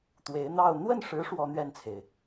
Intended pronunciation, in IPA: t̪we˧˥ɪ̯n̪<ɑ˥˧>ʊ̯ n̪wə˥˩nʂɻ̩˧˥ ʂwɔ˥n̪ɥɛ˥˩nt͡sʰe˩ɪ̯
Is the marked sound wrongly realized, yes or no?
no